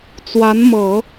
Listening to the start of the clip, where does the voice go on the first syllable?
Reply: rising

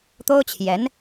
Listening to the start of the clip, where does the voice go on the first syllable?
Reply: high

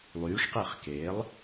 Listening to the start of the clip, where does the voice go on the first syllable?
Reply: rising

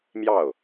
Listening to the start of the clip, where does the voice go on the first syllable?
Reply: falling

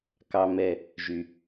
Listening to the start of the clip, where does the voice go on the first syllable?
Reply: high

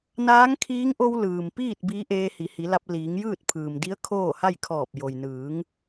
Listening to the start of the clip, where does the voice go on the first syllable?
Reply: rising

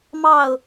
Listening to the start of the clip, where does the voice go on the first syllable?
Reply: falling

